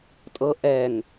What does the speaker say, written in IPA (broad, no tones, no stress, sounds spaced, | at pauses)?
tʼ ɤ ʔ ɛ ŋ